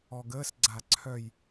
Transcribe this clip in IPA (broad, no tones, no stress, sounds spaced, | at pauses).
ɔ ɡ əː s ɡ͡ǀ a ǀʰ œ j